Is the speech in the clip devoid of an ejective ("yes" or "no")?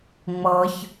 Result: yes